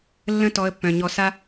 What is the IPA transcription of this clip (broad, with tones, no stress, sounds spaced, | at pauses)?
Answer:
lː ə̃˦ t ɔ˧ ə̯ pː œ̃˨ ɲ ɔ˧ s a˦